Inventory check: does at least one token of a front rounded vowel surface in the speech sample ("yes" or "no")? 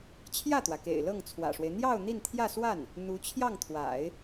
no